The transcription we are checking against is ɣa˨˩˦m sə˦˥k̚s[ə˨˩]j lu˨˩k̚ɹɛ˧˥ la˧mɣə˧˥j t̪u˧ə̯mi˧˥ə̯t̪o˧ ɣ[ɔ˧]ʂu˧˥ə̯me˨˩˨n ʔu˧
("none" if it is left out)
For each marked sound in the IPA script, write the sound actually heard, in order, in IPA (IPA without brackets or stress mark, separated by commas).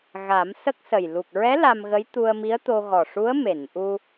ə˨˩, ɔ˨˩